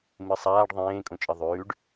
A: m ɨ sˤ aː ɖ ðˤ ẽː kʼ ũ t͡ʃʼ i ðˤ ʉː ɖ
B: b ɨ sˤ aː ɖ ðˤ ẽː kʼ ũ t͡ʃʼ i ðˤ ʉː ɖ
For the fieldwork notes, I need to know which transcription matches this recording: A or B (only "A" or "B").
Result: A